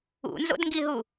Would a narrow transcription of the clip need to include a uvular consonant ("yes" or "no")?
no